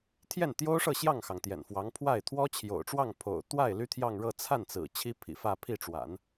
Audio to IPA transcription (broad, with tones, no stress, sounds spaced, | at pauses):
t̪ʰ j ɛ˥˩ n t̪ j o˥ ʊ̯ ʂ ɤ˥˧ ɕ j ɑ˥˩ ŋ x ɑ˩ ŋ t̪ j ɛ̰˨˩ n f w ɑ˧˥ ŋ pʰ w a˥˩ ɪ̯ t̪ʰ w ɔ˥ t͡ɕʰ j o̰˨˩ ʊ̯ ʈ͡ʂ w ɑ˥˩ ŋ pʰ o̰˨˩ ʊ̯ t̪ w a˥˩ ɪ̯ l y˥ t̪ʰ j ɑ˥˧ ŋ ɻ ɤ˥˧ t͡sʰ a˥˩ n t͡s ɹ̩˨˩ t͡ɕʰ i˥ pʰ ḭ˨˩ f ä˥˧ pʰ i˥˩ ʈ͡ʂ w a̰˨˩˦ n